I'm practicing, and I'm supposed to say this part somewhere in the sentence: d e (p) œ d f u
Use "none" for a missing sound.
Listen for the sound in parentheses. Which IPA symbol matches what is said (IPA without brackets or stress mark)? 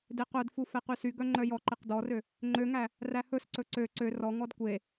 q